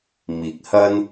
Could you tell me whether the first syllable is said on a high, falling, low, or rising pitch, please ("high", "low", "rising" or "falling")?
rising